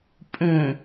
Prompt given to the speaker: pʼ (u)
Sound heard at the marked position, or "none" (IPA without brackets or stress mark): ũ